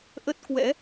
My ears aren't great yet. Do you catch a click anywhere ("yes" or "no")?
no